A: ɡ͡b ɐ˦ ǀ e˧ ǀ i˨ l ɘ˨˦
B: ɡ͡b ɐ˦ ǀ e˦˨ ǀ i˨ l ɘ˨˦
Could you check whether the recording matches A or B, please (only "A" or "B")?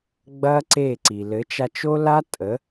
B